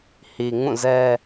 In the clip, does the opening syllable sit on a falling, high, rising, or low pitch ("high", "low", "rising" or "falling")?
low